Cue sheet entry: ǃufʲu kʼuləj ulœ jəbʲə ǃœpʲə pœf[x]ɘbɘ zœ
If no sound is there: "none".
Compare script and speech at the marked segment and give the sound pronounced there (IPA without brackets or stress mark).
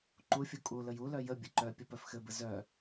x